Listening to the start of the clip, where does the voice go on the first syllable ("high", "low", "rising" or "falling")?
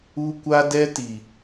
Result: high